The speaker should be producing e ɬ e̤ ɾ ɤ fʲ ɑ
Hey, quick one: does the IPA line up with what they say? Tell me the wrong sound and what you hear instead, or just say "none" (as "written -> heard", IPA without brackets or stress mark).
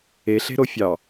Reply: ɤ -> o